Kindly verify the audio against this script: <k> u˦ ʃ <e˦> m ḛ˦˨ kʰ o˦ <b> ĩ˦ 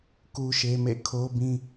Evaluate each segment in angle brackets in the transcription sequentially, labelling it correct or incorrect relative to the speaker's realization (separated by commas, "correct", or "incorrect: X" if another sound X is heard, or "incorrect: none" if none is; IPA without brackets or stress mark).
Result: correct, correct, correct